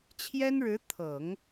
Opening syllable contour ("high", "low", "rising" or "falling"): high